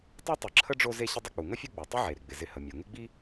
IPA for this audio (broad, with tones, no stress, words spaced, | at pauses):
tˤe˥tˤə˨ǁʰə˥ɖ͡ʐo˦ ze˦ɕɪ˦dˤɪ˦ k͡pu˩ŋə˥fʲu˦ ɡ͡bo˩ tˤɪ˥ʕe˩ ɾɪ˩ɡ͡bɪ˩ zɪ˨hə˩ mʲo˩ŋɪ˦ɡ͡bi˦